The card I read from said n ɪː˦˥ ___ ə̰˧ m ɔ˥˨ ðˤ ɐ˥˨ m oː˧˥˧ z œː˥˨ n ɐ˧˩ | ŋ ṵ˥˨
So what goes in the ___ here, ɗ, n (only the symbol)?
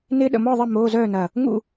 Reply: ɗ